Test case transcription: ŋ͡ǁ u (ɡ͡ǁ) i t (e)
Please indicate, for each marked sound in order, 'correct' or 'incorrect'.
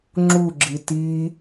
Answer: correct, incorrect

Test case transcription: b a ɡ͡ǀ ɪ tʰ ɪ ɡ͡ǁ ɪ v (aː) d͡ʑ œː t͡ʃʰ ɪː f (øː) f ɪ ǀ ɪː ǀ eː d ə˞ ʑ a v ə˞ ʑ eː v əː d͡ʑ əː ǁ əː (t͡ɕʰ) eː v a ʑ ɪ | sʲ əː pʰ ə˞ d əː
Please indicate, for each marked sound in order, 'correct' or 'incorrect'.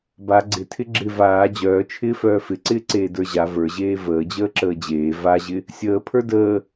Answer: correct, incorrect, incorrect

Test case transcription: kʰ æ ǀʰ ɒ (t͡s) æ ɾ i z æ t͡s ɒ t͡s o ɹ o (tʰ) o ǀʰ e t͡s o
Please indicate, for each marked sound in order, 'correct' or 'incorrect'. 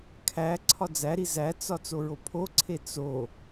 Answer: incorrect, incorrect

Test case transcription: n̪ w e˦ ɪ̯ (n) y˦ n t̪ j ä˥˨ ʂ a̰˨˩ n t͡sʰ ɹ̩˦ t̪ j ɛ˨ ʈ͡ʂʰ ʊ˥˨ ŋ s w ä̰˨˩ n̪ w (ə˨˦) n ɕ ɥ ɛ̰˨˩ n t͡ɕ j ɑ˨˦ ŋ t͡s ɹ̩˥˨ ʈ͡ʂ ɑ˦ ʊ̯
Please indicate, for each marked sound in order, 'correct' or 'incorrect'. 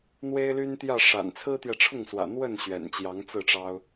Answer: incorrect, incorrect

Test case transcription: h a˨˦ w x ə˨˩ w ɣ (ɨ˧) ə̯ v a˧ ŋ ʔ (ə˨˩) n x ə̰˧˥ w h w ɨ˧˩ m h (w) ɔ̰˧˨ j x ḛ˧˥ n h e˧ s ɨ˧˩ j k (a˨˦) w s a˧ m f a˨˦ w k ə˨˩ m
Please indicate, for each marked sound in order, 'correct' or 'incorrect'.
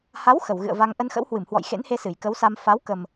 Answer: incorrect, incorrect, correct, incorrect

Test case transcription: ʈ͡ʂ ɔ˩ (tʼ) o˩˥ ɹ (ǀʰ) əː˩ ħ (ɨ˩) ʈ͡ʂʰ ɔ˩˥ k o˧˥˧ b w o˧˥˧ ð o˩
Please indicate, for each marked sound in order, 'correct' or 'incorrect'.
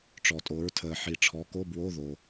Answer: correct, incorrect, incorrect

